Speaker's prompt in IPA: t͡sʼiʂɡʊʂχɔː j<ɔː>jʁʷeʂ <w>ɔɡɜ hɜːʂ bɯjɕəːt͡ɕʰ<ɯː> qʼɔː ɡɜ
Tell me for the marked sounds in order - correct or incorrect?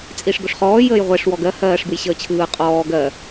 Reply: incorrect: əː, correct, correct

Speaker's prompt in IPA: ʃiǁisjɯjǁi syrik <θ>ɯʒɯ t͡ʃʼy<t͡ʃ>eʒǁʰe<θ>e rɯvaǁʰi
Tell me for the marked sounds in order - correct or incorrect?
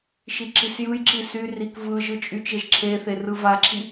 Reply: incorrect: v, correct, correct

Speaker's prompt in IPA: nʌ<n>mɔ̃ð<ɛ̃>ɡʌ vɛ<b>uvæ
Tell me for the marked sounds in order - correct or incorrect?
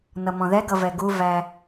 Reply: incorrect: none, incorrect: ɛ, incorrect: ɡ

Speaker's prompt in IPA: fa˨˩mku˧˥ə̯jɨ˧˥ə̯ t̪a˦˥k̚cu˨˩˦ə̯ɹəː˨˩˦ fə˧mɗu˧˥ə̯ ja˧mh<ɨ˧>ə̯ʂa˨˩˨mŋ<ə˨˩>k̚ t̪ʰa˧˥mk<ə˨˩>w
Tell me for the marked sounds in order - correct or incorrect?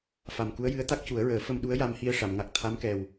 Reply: incorrect: i˧, incorrect: a˨˩, incorrect: ɛ˨˩

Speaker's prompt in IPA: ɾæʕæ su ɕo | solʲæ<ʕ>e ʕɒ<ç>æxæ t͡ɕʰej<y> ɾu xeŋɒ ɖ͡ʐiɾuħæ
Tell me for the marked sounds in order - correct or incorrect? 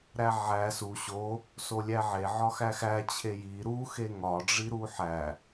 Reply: correct, incorrect: x, incorrect: i

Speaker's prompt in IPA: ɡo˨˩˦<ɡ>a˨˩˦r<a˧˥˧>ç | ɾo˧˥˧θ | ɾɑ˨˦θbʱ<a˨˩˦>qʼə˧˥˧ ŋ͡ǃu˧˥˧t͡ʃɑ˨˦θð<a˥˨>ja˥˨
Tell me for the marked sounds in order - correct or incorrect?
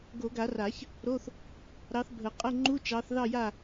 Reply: correct, incorrect: a˨˩˦, incorrect: ə˨˩˦, incorrect: ɑ˥˨

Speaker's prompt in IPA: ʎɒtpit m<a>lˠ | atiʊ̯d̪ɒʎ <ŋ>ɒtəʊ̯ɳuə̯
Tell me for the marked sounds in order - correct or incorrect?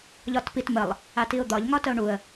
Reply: incorrect: ə, correct

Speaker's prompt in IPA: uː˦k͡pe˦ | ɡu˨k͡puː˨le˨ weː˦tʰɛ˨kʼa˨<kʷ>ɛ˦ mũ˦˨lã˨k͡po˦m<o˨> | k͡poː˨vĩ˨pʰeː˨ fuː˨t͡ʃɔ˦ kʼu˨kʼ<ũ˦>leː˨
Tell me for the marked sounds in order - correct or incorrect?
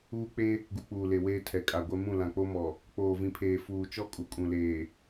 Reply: incorrect: ɡʷ, incorrect: ɔ˨, incorrect: ũ˨

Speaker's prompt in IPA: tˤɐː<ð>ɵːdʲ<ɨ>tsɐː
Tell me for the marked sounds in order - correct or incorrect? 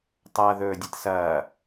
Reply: correct, correct

